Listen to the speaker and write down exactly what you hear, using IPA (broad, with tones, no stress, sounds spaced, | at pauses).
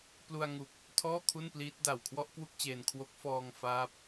p l u˧ a̯ ŋ u˨˩ k̚ | tʰ ɔː˥˩ kʰ u˥˩ n p l iː˦˥ t̚ d a˨˩ w kʰ w ɔ˥˩ ʔ k w u˥˩ k̚ t͡ɕ eː˧ n kʰ w o˦˥ k̚ f ɔː˧ ŋ f aː˦˥ p̚